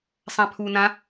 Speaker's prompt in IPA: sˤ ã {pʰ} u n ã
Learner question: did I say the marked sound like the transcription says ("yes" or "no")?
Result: yes